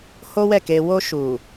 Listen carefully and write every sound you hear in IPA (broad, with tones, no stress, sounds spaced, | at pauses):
h o˦ w ɛ˦˨ k e˧ w o˧ ʃ u˨